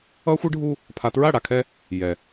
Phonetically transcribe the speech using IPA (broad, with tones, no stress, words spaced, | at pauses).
ʌ˦xʷɯ˦ɖʱu˦ | pʰa˨tɹa˦˨ɽa˨kʰɛ˦ | jɛ˨